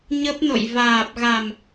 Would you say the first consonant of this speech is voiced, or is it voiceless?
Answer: voiced